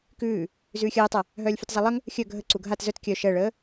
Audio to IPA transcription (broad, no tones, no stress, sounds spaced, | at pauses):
k ʉː | z ʉː xʲ ɜː tˤ a | ɦ œː lʲ f ʉ t zˤ a lˠ ə ŋ | xʲ œ ɡʱ ə ǀ u ɡʱ a t z œ t kʲ œ ʃ ɜ ɭ əː